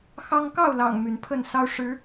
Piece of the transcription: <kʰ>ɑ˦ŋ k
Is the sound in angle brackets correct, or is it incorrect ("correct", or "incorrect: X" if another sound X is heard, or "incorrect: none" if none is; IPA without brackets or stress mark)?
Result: incorrect: x